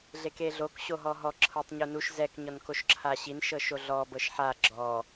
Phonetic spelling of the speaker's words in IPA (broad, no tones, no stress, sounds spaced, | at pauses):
ɮ e k e ɮ o k ɕ o ɦ ɔ ɦ ɔ ǁʰ ɤ tˤ ɲ u n u ʃ z ɛ k ɲ ɔ n k o ʃ ǁʰ a ɕ i n ʃ ɤ ʃ o ɮ ɔ b ɤ ʃ ħ a ɡ͡ǁ ɔ